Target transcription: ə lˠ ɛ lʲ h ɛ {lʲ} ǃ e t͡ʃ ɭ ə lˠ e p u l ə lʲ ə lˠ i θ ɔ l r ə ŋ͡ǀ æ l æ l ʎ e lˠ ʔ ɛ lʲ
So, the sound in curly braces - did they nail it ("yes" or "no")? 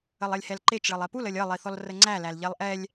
no